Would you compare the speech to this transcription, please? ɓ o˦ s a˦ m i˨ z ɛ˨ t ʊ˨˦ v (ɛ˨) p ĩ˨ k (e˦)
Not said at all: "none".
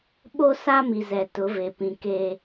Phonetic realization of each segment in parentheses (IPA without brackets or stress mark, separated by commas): e˨, e˦